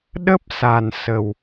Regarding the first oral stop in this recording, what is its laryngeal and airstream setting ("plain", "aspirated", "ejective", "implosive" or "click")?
implosive